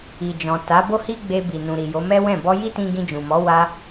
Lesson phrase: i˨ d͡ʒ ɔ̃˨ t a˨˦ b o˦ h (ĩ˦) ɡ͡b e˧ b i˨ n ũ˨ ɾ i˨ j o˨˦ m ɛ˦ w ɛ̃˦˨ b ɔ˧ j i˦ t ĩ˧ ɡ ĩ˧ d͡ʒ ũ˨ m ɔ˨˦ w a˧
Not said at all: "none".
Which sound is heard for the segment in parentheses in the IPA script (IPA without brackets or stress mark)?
i˦